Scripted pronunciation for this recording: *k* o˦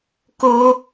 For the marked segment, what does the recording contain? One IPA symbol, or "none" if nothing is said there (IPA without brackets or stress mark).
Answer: k